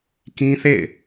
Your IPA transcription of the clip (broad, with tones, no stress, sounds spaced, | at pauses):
k ĩ˦ θ ḛ˦˨ ɪ̯